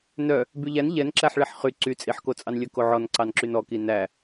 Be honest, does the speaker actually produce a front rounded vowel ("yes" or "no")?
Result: yes